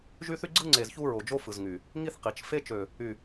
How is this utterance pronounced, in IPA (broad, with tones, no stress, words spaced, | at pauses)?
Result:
ʒy˦θy˦ ɡ͡ǀɯ˦ŋ͡ǀe˨z çu˦ɹo˨d͡ʒo˦ fɯ˨zŋy˨ | ŋi˦θ qi˨t͡ʃ fe˦t͡ʃø˨ | y˨